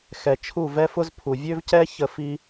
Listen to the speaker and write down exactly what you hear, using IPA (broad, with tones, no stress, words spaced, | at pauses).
xɛ˨t͡ʃʰu˦˨vɛ˦fʊ˦z pʰu˨vʲø˦vcɛ˦ çə˦˨fi˦